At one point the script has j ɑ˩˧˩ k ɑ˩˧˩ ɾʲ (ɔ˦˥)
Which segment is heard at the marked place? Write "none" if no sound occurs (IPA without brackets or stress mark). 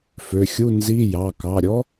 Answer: ɔ˦˥